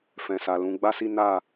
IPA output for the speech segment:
f ɛ̃˨ s a˨ l ũ˨˦ ɡ͡b a˦ s i˦ n a˦˨

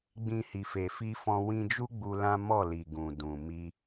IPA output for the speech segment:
ɡ͡b ĩ˧ h i˨ f e˨ f i˧ f ɔ̃˧ w ĩ˧ d͡ʒ u˦ ɡ͡b u˧ l ã˦ m ɔ˦˨ l i˨ ɡ ũ˨ d ũ˨ m i˧

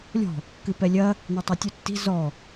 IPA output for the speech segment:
lʲ ɔ̤ | k ɨ p ɛ lʲ ɐ | n e tˤ ɐ tʲ u tː i̤ z ɔ

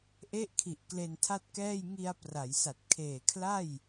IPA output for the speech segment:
ʔ e˦˥ ʔ kʰ i˨˩ ʔ k l e˧ n tʰ a˥˩ t̚ k ɛː˥˩ j ŋ i˧ a̯ p r a˩˦ j s a˨˩ t̚ kʰ eː˨˩ kʰ l a˥˩ j

